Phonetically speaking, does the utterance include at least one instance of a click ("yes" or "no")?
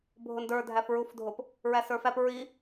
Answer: no